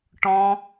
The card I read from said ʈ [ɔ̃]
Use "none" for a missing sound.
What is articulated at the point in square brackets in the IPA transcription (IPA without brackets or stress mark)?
ɔ̃